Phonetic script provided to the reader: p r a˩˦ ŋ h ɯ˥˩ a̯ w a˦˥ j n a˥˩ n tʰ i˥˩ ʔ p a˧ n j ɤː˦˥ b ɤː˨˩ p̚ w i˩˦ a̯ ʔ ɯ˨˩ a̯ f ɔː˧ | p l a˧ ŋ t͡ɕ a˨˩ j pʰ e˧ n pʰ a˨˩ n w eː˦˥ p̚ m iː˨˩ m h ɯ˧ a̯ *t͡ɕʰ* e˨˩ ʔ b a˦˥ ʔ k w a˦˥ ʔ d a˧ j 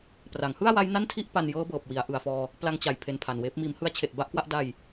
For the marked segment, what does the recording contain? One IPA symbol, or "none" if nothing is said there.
t͡ɕʰ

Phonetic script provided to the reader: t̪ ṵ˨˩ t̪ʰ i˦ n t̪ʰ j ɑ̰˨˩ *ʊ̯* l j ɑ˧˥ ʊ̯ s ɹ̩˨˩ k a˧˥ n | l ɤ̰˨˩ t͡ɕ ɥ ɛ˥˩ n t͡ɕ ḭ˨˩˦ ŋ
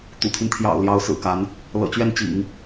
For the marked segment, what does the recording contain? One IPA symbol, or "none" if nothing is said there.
ʊ̯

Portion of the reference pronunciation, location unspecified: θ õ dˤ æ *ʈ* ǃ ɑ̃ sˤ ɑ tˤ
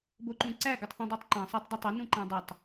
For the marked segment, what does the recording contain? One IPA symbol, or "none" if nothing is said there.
tˤ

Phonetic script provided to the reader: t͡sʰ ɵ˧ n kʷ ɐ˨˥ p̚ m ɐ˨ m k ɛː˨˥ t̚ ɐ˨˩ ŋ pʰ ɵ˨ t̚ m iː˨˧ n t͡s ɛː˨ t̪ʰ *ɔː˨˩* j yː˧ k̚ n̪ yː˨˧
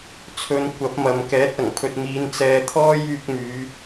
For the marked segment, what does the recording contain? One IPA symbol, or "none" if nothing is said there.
ɔː˥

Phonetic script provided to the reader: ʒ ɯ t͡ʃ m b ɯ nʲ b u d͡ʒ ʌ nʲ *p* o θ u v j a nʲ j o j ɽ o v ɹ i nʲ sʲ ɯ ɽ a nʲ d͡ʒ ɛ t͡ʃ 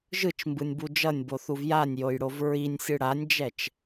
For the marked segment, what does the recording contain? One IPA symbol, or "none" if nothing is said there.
b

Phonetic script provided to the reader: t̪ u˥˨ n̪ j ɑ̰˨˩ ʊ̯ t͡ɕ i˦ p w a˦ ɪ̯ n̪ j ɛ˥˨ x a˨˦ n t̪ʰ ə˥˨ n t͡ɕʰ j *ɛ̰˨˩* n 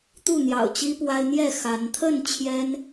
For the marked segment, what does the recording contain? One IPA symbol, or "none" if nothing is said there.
ɛ˦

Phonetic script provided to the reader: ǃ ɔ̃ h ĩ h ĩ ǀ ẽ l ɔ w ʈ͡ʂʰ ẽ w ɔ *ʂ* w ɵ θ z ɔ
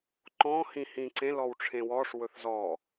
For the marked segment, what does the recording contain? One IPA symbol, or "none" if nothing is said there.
ʂ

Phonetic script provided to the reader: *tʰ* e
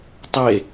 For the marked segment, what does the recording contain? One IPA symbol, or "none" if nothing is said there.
tˤ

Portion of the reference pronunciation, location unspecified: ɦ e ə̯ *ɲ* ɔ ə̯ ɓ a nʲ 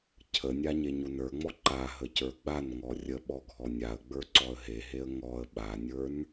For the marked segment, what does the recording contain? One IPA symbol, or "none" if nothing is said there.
ŋ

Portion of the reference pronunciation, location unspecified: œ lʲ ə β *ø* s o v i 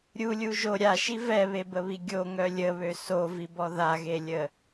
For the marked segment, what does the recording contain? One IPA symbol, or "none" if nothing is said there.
ø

